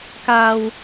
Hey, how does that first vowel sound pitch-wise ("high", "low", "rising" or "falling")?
low